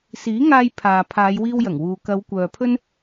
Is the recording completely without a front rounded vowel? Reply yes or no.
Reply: no